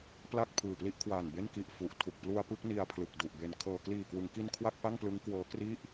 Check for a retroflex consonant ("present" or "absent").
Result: absent